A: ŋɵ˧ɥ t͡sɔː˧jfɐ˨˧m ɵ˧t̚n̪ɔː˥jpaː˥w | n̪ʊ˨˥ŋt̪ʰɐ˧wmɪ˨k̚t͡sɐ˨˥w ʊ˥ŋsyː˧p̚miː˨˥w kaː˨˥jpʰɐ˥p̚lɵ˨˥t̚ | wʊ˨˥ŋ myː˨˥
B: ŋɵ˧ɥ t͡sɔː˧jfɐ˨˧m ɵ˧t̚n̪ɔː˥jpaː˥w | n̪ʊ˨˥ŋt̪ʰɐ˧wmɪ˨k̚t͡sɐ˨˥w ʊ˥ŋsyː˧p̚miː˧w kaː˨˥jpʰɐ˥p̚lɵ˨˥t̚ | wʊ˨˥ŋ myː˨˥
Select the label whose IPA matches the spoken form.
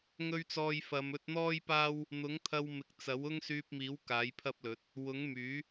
A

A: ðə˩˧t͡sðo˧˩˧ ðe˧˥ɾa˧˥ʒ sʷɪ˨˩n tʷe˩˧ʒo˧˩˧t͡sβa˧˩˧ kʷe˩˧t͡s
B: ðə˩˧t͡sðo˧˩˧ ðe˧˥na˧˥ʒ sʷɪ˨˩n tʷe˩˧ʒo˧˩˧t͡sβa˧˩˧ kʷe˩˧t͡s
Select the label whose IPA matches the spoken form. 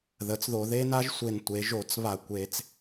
B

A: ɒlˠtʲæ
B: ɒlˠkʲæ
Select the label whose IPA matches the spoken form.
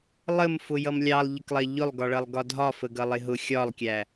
B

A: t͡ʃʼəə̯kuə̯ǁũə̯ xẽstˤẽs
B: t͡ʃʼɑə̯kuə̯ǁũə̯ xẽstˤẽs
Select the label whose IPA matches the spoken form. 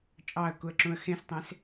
B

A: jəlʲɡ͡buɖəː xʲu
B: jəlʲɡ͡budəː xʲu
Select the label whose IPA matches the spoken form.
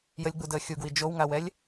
B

